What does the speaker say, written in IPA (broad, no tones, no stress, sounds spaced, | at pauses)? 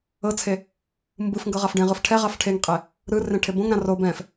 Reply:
ɤ t͡sʰ e | m b ɯ f ŋ ɡ ɤ ʁ a f ɖ ẽ ʁ ɯ f ʈʰ ɛ ʁ a f ʈʰ e ŋ qʼ e | ɾ ɯ r ẽ ʈʰ e b õ ŋ ɾ ã r o b ɛ̃ f